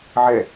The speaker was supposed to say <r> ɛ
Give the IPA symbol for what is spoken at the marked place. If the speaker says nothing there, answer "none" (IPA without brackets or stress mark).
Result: ʕ